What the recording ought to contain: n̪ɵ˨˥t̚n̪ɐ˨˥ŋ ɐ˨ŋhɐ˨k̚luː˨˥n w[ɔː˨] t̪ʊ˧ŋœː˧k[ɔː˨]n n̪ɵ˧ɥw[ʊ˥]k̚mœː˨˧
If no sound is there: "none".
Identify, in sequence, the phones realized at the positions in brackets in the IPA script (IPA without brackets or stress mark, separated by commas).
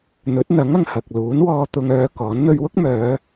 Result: ɔː˧, ɔː˨˥, ʊ˥